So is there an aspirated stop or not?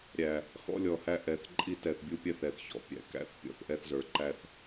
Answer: no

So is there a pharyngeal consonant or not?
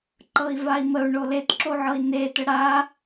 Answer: yes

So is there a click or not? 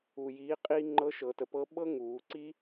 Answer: yes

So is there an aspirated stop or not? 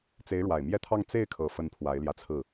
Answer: yes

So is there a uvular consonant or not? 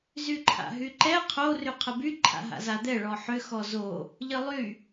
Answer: yes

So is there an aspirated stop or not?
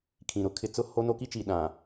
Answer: yes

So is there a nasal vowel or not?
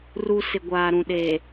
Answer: yes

